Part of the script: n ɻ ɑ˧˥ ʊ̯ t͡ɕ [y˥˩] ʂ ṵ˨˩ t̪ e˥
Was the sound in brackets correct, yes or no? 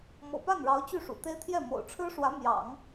yes